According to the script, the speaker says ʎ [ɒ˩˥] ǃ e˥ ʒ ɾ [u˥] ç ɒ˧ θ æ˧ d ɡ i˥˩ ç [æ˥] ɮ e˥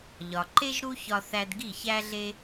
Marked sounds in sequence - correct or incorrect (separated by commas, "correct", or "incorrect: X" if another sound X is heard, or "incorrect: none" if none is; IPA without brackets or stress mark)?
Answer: incorrect: ɒ˩, correct, correct